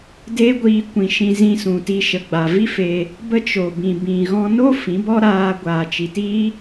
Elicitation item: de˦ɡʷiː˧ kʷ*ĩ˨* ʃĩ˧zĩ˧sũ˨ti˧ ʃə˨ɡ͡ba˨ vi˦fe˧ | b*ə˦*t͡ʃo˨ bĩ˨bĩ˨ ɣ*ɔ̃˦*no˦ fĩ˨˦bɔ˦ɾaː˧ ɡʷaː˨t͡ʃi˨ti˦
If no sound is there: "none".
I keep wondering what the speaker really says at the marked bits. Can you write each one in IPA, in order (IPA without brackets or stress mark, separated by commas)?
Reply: ĩ˨, ə˦, ɔ̃˧